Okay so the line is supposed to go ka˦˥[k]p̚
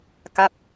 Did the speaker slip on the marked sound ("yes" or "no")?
yes